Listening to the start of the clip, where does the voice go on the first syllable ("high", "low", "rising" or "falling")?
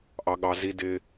high